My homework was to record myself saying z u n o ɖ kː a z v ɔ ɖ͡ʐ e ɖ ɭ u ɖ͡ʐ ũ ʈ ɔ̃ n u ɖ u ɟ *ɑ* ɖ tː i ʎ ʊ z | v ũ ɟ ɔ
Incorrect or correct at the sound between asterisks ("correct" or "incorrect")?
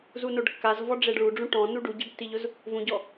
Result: incorrect